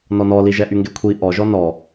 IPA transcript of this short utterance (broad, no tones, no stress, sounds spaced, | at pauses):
n ɔ n ɔ l i ʒ ɛ ʔ y ŋ ɡ e kʷʰ i ʔ ɔ ʒ ɔ n ɔ